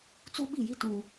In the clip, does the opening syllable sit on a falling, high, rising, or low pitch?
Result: high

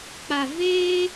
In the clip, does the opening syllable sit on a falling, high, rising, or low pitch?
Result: low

